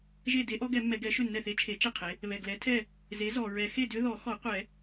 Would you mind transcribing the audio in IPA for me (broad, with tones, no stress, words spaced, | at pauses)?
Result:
ʒe˥˩de˦˥ʔɔ˦˥ɡɛ˨˩˦ mːɛ˨˩˦ɡɛ˩˥ ʃʏ˥˩nːɛ˥˩θe˦˥ t͡ʃʰe˨˩˦t͡ʃe˥˩ qʰe˩˥ | βɛ˩ɡlɛ˩˥tʰɛ˥˩ | ze˩˥zɔ˩ɹɛ˨˩˦ xe˥˩dʏ˦˥ ðɔ˨˩˦xɔ˨˩˦qʷɛ˨˩˦